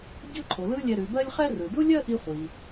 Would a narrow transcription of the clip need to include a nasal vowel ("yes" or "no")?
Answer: no